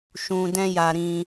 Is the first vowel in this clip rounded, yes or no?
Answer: yes